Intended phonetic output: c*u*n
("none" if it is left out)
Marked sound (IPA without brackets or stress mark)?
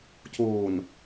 uː